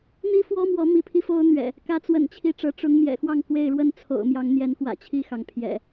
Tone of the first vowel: high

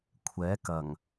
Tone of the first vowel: rising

